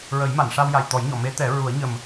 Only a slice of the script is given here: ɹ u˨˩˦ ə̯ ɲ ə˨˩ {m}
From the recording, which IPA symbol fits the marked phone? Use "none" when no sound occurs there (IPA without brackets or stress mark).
m